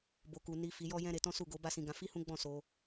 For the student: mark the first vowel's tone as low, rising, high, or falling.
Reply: low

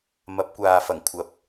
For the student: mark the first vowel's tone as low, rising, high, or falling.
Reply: rising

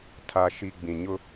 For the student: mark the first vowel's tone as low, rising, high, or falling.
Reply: low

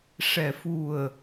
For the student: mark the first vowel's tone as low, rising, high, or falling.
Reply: low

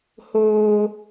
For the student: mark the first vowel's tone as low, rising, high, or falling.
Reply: high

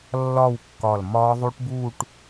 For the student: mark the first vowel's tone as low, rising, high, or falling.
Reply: falling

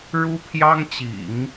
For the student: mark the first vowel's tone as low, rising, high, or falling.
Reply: high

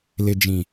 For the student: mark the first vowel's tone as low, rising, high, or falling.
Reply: low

